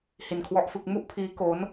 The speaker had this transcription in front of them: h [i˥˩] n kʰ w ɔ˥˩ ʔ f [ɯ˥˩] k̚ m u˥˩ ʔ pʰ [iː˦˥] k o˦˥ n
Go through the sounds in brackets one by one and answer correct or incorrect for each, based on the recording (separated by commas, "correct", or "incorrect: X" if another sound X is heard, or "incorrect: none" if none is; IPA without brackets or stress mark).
incorrect: i˧, correct, correct